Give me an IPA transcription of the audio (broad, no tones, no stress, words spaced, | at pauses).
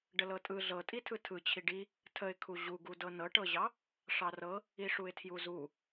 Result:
ɖəlɤtʼɯ ɮɤtʼitʰɯ tʰɯ t͡ɕʰiɖi | tʰəɪ̯kʰu ʑuɡudɤ nɤʈɤʑɑ | ʂɑrɤ | iʂuɪ̯tʰjuzu